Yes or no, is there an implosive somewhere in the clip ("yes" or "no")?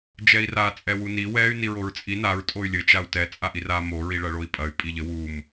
no